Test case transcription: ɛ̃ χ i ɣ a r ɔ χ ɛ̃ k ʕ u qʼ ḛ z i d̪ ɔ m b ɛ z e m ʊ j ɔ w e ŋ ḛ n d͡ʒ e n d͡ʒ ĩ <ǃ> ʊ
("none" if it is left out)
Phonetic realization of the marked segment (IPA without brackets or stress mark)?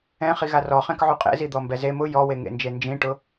ʈ